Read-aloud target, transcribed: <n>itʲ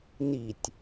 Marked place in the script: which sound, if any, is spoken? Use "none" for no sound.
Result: n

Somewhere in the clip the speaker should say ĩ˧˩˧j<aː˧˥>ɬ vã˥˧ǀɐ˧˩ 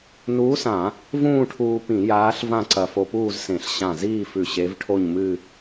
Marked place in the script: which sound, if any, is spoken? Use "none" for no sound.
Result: aː˧˥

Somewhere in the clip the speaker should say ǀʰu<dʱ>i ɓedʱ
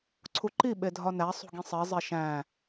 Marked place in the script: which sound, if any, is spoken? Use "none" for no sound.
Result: ǃ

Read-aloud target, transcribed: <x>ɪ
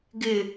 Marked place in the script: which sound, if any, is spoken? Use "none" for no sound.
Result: ɡ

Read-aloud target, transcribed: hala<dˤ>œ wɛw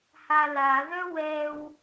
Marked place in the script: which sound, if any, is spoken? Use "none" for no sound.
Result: ð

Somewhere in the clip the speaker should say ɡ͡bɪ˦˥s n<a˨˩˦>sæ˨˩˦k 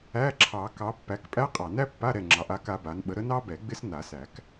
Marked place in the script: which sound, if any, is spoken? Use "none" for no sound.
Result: a˨˩˦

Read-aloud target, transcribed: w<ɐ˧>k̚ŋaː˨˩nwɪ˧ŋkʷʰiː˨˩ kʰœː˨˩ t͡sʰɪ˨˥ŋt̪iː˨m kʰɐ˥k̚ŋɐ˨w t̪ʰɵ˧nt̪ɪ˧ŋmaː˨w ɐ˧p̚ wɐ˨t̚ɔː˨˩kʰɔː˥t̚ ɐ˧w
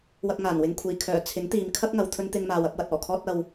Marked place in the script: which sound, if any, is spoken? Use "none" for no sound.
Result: ɐ˧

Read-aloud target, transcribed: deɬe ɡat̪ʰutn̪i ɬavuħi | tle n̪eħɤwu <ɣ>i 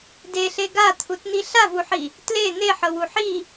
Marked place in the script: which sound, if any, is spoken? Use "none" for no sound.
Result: ħ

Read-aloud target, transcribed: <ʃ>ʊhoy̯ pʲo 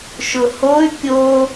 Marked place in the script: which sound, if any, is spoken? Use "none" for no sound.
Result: ʃ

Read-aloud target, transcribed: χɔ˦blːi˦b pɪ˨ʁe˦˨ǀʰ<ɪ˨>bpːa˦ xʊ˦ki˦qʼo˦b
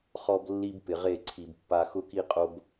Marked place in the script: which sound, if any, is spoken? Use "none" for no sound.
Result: i˨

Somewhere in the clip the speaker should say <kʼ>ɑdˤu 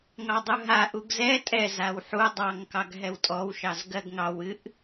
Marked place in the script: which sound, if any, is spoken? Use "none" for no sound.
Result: ŋ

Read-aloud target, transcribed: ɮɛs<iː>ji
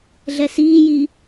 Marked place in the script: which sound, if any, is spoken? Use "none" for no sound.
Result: iː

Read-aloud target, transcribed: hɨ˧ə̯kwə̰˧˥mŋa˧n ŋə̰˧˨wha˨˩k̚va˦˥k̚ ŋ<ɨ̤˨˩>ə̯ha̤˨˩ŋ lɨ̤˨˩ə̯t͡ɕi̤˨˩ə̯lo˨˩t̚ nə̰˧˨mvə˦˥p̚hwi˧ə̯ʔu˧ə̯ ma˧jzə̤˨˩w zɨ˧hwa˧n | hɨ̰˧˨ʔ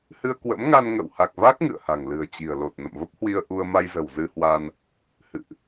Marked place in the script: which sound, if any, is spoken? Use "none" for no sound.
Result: ɨ̰˧˨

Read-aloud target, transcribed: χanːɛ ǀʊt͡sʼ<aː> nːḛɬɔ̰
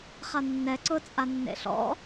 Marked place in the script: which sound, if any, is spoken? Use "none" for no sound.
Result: a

